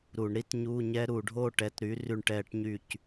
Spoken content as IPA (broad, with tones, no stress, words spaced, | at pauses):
ɾu˧˩˧ɳɾi˦˥tɲu˧˥˧ ɲɛ˦˥ɾu˧˩˧ ɖʱo˥˨ ʈɛ˩˥tɾyː˩˥ ry˥˨ɳʈɛː˥˨ʈɲyː˥˨c